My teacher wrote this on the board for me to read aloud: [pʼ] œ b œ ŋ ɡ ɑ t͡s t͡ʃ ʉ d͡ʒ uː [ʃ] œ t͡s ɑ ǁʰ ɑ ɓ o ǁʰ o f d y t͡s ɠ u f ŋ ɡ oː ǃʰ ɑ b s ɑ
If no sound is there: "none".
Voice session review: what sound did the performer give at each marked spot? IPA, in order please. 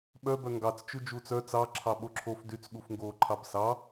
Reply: ɓ, t͡s

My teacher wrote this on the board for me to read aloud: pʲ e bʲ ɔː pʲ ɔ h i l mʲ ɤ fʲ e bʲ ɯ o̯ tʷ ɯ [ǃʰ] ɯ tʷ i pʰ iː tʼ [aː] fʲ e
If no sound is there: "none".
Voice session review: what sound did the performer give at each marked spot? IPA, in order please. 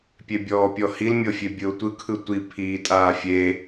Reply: kʰ, aː

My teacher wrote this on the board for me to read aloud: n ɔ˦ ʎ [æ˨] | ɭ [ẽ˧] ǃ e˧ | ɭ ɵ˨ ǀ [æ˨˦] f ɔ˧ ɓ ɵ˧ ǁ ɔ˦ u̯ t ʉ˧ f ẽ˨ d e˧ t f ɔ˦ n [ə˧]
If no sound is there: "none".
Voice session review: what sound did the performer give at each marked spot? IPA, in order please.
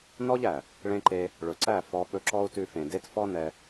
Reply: æ˨, ẽ˧, æ˦˨, ɛ˧

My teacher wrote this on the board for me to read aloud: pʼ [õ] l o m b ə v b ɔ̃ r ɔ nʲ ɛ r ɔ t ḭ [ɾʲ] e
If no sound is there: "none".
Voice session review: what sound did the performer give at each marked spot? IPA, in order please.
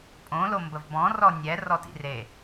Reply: õ, r

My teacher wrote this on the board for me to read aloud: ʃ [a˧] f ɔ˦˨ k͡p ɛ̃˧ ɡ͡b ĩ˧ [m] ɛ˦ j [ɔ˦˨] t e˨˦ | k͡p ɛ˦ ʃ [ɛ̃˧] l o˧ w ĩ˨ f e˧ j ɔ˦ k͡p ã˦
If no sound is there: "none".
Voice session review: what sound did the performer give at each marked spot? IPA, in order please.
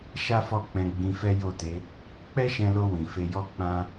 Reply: a˦, f, o˦˨, ɛ̃˧

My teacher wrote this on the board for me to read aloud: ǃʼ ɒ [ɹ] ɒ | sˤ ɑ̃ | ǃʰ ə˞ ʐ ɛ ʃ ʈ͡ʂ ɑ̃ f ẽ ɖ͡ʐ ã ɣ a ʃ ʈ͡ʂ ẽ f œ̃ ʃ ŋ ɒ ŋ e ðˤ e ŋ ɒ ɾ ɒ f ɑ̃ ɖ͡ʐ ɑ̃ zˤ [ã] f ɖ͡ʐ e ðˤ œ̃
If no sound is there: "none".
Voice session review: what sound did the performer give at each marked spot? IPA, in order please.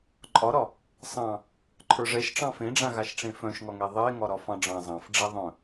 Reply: ɾ, ɑ̃

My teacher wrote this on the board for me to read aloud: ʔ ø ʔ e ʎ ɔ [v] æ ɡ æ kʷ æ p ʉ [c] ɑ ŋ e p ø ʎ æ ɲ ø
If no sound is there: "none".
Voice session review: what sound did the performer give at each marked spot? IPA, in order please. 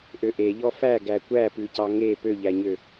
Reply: f, c

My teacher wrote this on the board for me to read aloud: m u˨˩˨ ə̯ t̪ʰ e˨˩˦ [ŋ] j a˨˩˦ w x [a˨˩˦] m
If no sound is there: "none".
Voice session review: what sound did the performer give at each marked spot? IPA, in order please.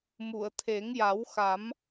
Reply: ŋ, a˨˩˦

